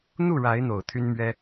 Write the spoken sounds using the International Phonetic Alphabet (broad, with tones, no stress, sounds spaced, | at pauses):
n̪ u˥˨ ɻ a˨˦ ɪ̯ n̪ o˨˩ ʊ̯ t̪ʰ y˦ n m ɥ ɛ˦